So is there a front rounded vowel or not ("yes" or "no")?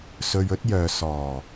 yes